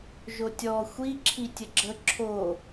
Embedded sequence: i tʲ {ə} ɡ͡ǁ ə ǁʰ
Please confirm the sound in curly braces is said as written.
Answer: yes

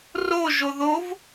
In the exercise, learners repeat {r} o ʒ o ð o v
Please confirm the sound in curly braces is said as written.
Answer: yes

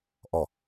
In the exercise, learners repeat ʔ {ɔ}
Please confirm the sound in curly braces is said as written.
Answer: yes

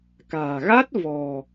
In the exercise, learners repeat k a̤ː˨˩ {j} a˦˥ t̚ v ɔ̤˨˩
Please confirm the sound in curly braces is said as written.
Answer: no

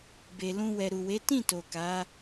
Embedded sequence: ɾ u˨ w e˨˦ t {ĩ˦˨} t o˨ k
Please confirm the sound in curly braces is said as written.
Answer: yes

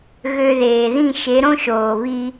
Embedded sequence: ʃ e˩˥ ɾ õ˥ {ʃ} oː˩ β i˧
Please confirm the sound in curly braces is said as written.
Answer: yes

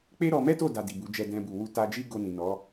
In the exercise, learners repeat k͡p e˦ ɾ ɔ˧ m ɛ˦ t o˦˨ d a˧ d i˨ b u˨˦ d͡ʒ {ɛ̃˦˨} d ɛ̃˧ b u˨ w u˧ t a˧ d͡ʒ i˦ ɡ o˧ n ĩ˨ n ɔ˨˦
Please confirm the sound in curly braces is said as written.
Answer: no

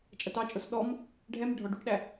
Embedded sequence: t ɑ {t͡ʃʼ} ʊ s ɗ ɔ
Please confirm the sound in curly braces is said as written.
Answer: yes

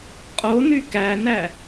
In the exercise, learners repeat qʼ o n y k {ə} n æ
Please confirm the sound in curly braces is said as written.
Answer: no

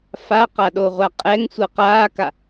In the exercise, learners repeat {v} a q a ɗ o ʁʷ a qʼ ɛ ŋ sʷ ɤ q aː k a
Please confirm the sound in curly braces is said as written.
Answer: no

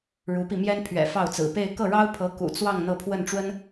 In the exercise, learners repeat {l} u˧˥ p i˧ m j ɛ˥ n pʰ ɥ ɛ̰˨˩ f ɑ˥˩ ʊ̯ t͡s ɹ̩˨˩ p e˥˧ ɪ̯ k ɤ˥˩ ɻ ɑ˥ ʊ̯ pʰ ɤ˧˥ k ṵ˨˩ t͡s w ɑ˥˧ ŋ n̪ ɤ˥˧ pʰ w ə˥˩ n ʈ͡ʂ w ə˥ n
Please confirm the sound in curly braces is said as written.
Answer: no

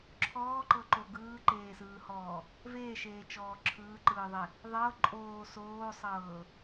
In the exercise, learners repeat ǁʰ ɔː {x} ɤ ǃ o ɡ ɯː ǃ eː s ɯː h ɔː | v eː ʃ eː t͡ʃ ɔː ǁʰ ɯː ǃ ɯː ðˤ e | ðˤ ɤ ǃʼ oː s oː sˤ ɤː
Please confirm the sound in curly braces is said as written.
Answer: no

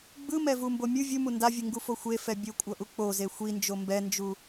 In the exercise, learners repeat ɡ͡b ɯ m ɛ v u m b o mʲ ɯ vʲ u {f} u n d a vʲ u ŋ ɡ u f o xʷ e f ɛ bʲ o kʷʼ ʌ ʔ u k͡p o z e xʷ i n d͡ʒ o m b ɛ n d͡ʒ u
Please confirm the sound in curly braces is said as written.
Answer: no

